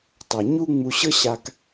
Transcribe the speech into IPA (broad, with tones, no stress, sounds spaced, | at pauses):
tˤ ɤ˩ ɲ u˧ ŋ͡m u˧ ɕ ɤ˥ ɕ a˧ k